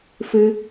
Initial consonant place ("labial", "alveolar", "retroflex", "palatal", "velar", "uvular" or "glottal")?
labial